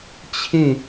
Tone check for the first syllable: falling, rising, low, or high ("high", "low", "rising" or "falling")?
falling